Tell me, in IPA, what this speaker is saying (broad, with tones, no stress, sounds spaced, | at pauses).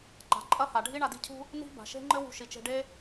ǃ a̤˩ ǃʼ ɐ˥ h a˩ ɖʱ i˥ ɳ a˧ d i̤˥ cʰ ṳ˥ | n i̤˥ b a̤˩ ʃ e̤˥ ŋ͡ǃ ɘ˥ w ṳ˧ ʃ i˩ t͡ʃ e̤˧ ɖ e˥